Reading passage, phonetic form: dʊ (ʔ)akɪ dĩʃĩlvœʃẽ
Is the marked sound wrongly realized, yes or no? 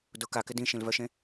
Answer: yes